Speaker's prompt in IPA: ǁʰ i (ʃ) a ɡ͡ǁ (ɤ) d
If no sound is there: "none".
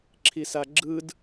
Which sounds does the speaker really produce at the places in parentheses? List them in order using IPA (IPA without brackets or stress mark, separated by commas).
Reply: s, ɯ